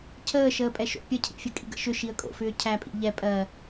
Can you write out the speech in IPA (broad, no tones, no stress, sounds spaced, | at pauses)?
cʰ əː ʃ əː pʼ ɛ ʃ o̰ pʲ ə cʰ ḭ fʲ ə kʼ ḭ ɡ ə̰ ʃ ʏ ʃ i ə̯ kʼ o̰ f ʏː cʰ æ pʼ ḭ ʎ ɛ pʼ ɜ